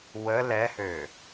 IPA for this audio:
w ə l ɛ h ø

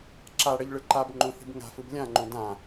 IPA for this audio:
ǁ a ɽ ʌ ʎ ɭ ɯ ǃ a b ŋ͡ǃ õ θ i̤ b ŋ a̤ f ɯ b lʲ ã ŋ͡ǃ õ d ã

